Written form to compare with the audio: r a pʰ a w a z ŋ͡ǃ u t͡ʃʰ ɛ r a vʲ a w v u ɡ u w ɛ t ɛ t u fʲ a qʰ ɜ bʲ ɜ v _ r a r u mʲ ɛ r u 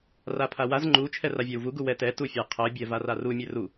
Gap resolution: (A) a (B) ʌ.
A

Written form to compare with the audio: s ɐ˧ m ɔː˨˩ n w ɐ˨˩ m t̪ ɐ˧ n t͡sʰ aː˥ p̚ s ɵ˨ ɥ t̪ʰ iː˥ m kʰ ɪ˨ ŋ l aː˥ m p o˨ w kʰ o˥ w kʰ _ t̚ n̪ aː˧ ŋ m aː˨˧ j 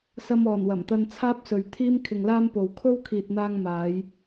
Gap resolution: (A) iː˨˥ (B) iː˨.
B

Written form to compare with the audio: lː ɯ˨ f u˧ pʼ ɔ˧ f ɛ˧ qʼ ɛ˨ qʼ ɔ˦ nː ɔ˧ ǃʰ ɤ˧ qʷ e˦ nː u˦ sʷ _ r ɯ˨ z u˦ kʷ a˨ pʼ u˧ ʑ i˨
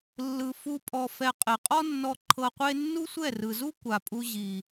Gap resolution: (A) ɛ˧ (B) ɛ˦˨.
B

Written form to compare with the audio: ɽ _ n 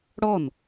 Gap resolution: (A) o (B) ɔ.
B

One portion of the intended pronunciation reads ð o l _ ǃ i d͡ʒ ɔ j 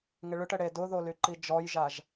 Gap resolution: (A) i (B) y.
B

